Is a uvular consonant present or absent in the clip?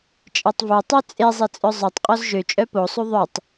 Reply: present